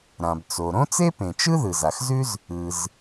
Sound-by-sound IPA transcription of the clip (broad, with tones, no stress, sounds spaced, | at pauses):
ɾ ã˩ b t͡s o˩ ɾ õ˥ t͡s e˥ p ẽ˩ t͡ʃ ɯ˥ ð ɯ˩ z a˩ x z ʉ˥ z | ɯ˩ z